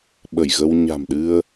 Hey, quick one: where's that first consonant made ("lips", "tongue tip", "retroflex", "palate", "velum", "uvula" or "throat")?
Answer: lips